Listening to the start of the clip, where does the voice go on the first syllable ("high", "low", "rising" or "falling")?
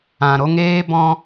low